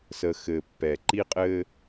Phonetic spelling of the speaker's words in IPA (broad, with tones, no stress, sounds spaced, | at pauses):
s ə˨ x ɘ˨ pː ɛ˨ ǃ i˦ qʼ ɘ˦